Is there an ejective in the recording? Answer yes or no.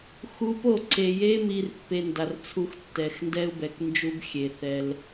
no